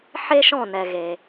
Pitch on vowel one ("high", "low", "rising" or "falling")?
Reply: high